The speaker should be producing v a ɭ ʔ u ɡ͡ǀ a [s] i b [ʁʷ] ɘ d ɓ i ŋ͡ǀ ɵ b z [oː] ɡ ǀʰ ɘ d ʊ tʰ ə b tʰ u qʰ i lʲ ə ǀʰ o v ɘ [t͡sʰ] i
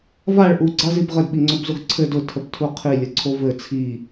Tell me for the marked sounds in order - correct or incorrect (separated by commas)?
incorrect, incorrect, incorrect, correct